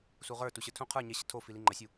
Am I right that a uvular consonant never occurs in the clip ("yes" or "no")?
no